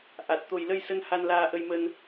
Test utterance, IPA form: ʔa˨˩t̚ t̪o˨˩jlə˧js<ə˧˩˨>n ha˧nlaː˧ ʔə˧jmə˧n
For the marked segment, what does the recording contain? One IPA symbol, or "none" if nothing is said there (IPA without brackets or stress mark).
ə˧